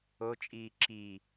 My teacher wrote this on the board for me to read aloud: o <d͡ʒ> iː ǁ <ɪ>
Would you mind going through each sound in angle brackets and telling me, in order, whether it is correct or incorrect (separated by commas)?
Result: incorrect, incorrect